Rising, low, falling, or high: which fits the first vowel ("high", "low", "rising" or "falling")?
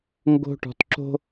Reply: high